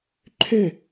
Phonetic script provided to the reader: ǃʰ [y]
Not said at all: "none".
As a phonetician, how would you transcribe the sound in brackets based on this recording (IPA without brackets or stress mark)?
ø